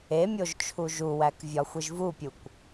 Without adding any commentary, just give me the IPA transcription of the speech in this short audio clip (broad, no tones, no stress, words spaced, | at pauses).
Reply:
emʲoʒ t͡ʃʰuʒuwæk vʲɒxʷiʒvupʲukʷ